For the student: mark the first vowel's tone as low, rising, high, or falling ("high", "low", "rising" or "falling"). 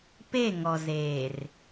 falling